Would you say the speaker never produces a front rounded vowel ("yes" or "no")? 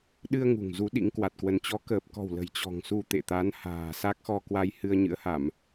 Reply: yes